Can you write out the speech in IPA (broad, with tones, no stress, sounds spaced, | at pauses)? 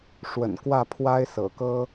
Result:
ʂ w ə̰˨˩ n k w ä˥˩ pʰ w a˥ ɪ̯ s ɤ̰˨˩ k ɤ˥